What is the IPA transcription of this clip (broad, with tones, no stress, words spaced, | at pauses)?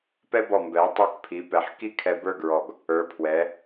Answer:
pɛ˥bɔ˧˩mbɛ˩˧w tˤə˞˧kpʰi˩˧ pɛ˩˧ħki˥˧kʰɛ˧ bə˞˥˧ɡɹɔ˧˩ɡ | ə˞˩˧pʰwɛ˩˧